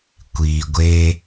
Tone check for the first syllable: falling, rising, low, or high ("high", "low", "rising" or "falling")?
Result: low